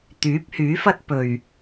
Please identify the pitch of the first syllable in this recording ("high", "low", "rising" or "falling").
rising